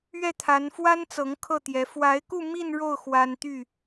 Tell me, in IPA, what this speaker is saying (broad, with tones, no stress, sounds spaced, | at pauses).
ɥ ɛ˥˩ t̪ʰ a˧˥ n f w a˥ n t͡s ɤ˧˥ ŋ kʰ ɤ˥˩ t̪ j ɛ˧˥ f w a˧˥ ɪ̯ k u˥˧ m i˥˧ n ɻ o˥˩ ʊ̯ x w a˥ n t̪ y˥˩